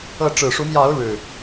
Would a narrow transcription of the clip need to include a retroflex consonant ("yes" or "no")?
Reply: yes